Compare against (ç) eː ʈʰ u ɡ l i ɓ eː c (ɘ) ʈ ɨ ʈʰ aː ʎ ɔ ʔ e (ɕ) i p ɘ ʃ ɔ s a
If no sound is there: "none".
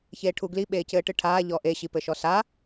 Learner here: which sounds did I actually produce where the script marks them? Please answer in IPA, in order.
ç, ɘː, ɕ

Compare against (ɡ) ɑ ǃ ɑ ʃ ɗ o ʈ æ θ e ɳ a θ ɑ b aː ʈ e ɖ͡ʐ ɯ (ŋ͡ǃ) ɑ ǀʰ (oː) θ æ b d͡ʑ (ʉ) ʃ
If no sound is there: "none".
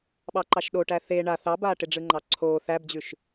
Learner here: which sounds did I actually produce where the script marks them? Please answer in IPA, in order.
ɓ, ŋ͡ǃ, oː, ʉ

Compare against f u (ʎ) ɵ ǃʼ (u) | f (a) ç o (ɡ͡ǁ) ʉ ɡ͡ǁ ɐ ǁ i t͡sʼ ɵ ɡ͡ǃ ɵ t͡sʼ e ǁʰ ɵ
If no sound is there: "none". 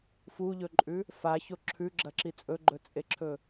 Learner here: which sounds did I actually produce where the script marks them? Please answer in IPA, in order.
ʎ, ʉ, a, ǁʰ

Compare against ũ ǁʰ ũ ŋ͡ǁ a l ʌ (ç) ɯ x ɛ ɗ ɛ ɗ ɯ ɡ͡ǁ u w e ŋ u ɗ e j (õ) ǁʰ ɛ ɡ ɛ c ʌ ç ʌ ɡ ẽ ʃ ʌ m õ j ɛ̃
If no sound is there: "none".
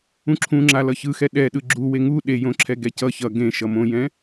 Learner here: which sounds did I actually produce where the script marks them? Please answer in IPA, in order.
ç, õ

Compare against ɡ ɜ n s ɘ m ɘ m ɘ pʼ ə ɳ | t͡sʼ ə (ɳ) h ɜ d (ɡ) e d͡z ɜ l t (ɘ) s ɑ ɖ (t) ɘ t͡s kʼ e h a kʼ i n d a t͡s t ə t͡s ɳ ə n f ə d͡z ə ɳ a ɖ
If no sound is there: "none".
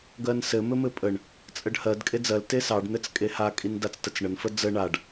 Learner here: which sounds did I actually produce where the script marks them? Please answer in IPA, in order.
ɖ, kʼ, e, n̪

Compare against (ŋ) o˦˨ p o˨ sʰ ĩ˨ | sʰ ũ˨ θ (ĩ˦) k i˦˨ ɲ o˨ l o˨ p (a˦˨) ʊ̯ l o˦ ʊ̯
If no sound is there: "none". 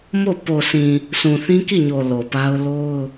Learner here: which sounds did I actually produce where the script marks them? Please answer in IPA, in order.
m, ĩ˦, a˦

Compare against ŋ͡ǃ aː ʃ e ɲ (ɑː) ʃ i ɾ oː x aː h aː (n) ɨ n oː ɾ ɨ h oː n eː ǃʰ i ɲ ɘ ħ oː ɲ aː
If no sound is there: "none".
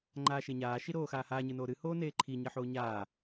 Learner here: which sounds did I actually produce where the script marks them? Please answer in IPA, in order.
aː, ɲ

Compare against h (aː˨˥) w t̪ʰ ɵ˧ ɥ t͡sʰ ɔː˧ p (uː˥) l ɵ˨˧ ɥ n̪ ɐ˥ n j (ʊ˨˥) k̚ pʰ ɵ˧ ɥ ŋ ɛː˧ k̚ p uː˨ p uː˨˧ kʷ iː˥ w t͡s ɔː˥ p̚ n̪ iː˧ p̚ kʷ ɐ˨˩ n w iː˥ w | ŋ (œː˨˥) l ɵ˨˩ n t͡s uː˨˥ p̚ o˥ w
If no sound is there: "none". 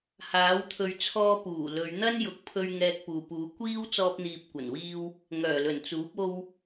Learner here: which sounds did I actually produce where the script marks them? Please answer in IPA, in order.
aː˨˥, uː˨˩, ʊ˨˥, œː˨˩

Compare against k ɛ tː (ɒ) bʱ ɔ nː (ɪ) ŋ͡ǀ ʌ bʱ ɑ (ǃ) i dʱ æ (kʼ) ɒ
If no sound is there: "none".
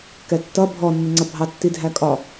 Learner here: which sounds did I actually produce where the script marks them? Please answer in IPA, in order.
ʌ, ɪ, tː, kʼ

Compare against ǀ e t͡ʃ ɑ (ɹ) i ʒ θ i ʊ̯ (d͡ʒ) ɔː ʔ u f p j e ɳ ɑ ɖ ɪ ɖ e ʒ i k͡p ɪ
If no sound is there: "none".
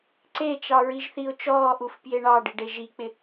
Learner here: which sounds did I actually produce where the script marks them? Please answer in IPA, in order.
ɹ, t͡ʃ

